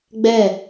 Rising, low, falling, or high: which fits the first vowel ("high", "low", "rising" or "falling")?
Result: falling